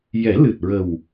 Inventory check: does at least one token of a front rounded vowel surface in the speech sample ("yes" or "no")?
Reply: no